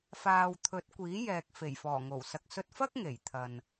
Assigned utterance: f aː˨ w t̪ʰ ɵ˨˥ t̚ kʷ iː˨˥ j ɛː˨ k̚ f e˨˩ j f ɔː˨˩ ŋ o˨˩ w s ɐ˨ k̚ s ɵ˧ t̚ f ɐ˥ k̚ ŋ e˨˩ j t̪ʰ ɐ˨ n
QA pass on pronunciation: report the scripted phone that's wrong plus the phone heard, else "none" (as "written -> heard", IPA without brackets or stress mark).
none